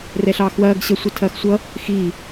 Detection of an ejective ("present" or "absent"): absent